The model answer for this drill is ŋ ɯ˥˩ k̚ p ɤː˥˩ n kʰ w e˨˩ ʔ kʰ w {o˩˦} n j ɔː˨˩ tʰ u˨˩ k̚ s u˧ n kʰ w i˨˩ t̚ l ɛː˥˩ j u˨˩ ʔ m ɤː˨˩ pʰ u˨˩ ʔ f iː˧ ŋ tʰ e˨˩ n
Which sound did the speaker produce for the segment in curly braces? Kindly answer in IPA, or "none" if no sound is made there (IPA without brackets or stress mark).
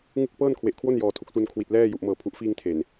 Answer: o˥˩